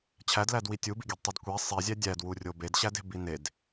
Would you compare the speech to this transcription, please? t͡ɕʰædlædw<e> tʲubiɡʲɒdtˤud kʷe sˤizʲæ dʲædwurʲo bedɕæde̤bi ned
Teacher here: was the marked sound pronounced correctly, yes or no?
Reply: no